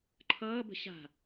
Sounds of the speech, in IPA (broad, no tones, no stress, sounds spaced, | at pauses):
ǃʰ ʌː b ə̤ ɕ a̤